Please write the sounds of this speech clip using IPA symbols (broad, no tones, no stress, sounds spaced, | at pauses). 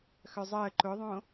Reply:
x œ zˤ əː ǃ ʊ ðˤ õ